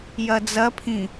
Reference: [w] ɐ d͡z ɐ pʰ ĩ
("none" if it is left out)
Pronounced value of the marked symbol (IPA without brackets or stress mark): j